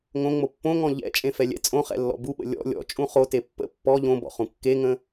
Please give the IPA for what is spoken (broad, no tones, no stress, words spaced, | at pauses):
ŋõŋ͡mo pːõŋɔ̃ ʎɛ̰t͡ʃʼẽfɛlʲɛ̰ t͡sʼõχɛ̰lːɔ̰ buɓə̰ lʲɔ̰ lʲɔ̰t͡ʃʼũ χote pːə̰ pːɔ ʎõbɔ̰χũ kːeŋə̃